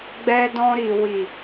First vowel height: mid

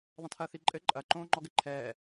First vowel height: low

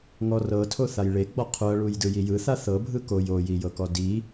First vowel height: mid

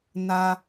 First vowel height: low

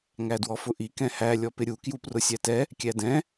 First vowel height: low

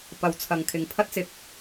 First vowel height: low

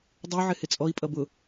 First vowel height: high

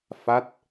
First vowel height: low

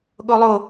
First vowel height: mid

